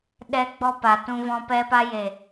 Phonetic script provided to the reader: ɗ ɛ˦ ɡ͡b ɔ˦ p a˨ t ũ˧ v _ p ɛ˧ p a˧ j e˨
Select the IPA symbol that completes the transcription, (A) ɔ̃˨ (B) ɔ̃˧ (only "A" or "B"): B